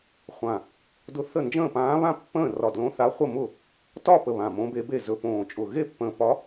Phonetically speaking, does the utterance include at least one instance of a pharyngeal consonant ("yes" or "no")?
no